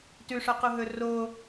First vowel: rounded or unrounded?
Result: rounded